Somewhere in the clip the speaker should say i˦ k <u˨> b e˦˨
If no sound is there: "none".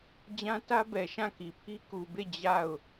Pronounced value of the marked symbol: u˨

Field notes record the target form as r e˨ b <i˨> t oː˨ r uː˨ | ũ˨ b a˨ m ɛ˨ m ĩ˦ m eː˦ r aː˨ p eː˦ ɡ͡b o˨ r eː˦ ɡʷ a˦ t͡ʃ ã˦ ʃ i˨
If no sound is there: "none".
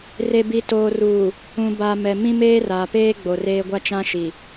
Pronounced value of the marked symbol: i˨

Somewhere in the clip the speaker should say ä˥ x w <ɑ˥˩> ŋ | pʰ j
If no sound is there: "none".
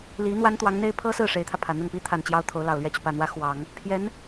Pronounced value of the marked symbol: ɑ˨˩˦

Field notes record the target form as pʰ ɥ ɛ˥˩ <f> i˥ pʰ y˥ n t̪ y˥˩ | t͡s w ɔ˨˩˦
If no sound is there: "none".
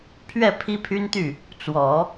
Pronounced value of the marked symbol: pʰ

